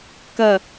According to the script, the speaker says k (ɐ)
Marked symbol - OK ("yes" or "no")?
yes